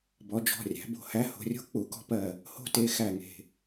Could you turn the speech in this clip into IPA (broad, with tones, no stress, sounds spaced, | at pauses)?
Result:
b ɔ˩˧ d͡ʒ ɔ̤˩˧˩ rʲ æ̤˩˧ b o̤˧˩ h æ˦ h o̤˩˧ rʲ o̤˦ k͡p u˩˧ k ɔ̤˦ p ɜ˧˩ | h o̤˦ t e˩˧˩ x æ˧˩ ŋ e̤˧˩